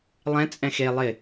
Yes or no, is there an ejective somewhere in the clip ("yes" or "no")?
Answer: yes